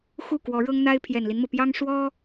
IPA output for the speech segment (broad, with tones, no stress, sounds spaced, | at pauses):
x u˥˩ k w ɔ˧˥ ɻ ɤ˥ ŋ n̪ a˥ ɪ̯ pʰ j ɛ˨˩ n l i˦ n m ɤ˩ p j ɑ˥ ŋ ʂ w ɔ˥